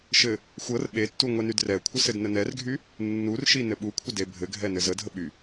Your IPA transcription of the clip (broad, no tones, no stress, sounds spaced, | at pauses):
ʃ ɘ | xʷ ɤ r ɓ e tː u ŋʷ ɛ n y d r ɛ kʷʰ ə s ɘ d n ə n ɛ r ɡʱ y | nː u r ʃ i n ɘ ɓ u kʷʰ ə d e bʱ ɘ ɡʱ ɛ n ɘ z ə dʱ ə ɓ y